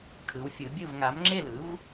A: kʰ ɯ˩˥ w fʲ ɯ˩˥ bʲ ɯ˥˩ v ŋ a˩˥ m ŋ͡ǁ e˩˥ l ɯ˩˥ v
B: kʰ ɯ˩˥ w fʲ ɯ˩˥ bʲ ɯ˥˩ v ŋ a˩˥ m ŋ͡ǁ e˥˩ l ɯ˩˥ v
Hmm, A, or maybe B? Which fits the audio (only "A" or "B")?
B